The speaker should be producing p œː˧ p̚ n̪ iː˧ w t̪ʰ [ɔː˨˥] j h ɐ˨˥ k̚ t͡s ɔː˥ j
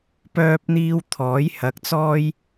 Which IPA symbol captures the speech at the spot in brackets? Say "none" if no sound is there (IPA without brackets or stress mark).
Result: ɔː˨˥